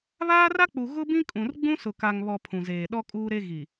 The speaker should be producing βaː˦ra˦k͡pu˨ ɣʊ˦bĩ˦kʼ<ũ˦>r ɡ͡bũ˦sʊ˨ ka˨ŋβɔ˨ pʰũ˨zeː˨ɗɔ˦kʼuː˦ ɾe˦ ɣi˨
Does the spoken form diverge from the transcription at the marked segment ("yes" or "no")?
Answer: yes